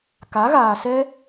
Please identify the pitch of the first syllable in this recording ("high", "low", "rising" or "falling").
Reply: rising